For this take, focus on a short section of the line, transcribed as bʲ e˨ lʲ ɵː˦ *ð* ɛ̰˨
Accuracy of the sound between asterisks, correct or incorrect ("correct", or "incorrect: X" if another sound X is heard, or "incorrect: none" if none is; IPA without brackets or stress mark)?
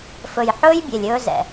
incorrect: z